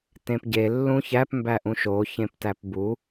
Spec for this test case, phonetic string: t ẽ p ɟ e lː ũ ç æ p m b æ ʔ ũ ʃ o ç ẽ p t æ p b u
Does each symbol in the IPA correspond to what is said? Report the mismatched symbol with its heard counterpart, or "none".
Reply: none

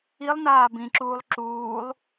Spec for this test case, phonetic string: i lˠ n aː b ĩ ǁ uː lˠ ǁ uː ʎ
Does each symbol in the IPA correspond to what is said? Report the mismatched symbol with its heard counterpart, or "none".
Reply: ʎ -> lˠ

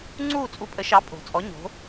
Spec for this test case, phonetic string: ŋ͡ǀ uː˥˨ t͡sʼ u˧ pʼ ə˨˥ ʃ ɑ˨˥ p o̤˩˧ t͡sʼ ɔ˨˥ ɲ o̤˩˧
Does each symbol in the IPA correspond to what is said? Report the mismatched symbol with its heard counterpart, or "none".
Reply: p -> pʼ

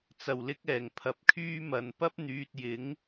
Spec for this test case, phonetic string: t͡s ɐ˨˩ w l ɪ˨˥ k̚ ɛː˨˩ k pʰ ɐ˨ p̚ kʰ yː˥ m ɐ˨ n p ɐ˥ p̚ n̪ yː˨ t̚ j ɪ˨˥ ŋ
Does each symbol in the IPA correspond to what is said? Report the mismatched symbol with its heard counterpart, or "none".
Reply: k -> ŋ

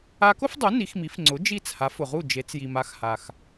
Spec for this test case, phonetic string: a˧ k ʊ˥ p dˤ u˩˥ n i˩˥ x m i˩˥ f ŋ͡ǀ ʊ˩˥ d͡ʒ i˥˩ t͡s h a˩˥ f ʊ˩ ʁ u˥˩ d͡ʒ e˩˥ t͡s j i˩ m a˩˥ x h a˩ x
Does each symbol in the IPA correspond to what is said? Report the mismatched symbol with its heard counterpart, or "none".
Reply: p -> f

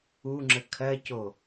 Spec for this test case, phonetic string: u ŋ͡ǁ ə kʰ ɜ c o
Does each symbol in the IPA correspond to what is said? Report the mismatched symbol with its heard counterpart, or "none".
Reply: none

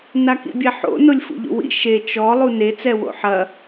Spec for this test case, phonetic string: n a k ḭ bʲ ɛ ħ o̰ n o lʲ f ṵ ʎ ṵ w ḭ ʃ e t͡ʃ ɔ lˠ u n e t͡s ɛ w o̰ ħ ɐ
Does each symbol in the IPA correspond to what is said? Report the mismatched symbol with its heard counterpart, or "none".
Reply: none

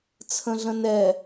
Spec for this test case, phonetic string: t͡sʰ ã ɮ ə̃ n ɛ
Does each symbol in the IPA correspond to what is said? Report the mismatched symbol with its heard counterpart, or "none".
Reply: ã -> ə̃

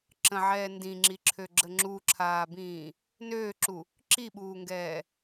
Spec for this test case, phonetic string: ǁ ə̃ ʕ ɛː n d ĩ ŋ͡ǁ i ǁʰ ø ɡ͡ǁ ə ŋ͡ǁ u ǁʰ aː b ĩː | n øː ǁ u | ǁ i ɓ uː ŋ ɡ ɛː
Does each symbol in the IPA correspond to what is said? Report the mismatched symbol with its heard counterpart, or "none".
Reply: none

